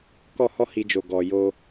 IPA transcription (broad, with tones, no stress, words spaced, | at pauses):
kɔ˦hɔ˦hi˧d͡ʒo˨ ɡɔ˨jo˧